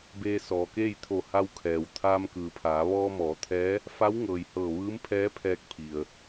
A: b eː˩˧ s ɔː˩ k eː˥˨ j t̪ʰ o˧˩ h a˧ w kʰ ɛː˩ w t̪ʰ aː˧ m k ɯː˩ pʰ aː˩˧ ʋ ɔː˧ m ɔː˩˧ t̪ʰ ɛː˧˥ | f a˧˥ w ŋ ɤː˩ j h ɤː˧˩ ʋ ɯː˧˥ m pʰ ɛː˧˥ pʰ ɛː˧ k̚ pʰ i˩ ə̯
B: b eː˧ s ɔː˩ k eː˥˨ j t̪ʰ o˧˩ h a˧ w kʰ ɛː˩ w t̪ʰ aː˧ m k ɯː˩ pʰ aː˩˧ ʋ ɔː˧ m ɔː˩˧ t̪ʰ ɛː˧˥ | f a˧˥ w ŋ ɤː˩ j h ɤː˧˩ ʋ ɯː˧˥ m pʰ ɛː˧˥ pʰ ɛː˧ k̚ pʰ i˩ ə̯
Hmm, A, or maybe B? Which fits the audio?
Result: B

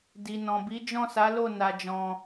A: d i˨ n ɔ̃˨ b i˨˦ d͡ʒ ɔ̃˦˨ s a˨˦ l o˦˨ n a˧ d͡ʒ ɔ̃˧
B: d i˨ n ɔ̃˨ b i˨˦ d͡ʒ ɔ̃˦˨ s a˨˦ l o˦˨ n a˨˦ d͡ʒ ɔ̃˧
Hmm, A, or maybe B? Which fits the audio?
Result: A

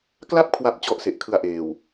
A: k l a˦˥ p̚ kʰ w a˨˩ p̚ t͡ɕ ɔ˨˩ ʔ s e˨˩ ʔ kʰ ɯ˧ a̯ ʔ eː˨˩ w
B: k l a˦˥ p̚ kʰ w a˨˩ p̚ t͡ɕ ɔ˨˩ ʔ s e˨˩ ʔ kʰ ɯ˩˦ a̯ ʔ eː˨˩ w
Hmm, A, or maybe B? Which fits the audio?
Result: A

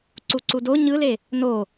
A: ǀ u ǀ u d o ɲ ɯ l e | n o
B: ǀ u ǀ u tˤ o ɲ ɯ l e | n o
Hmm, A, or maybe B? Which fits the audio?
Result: A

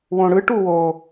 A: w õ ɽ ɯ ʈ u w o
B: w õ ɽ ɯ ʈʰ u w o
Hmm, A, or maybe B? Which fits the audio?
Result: A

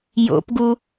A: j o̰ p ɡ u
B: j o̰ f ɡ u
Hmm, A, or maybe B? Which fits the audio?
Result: A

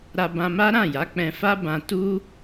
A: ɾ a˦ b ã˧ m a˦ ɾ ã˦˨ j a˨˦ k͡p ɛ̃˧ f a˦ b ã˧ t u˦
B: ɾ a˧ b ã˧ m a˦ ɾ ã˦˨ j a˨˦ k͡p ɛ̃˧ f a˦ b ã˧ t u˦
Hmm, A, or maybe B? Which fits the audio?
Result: B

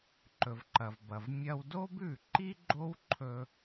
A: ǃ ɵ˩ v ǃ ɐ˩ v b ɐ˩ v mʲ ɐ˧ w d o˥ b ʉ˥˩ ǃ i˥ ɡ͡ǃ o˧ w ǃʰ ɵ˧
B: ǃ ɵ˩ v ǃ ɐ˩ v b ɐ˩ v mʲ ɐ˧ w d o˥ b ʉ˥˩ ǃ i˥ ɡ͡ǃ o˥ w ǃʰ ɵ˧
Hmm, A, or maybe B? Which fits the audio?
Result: B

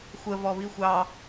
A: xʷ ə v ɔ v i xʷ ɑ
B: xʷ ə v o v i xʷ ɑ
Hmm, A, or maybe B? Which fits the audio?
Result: A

